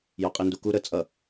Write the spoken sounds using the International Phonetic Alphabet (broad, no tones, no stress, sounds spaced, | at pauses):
j ɔ qʼ i n d u k u ɾ ə t͡sʼ ʌ